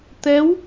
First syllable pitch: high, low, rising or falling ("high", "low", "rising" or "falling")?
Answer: rising